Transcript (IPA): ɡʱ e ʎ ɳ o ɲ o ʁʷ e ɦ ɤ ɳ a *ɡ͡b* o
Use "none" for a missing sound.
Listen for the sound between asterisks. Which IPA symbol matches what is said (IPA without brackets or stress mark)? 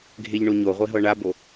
b